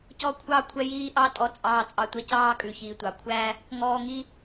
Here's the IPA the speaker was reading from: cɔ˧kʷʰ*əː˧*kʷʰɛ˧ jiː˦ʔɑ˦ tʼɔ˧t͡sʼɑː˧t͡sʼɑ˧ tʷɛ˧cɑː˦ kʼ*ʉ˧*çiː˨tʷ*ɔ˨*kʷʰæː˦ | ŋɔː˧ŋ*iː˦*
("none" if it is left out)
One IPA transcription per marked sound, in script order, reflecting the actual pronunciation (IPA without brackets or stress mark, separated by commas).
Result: ɑː˧, ʉ˨, ɑ˨, i˦